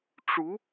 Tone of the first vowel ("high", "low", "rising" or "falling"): rising